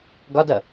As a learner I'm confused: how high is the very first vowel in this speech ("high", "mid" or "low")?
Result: low